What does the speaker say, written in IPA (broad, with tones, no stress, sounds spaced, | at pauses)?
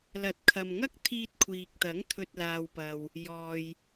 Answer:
l ɐ˨˥ t̚ kʰ ɐ˨ m ŋ ɐ˥ k̚ t̪ʰ iː˧ t̚ kʷʰ iː˨ k̚ t̪ ɐ˨˥ ŋ t̪ʰ ɵ˨ t̚ l aː˨ w p ɐ˨ w | j ɔː˨ j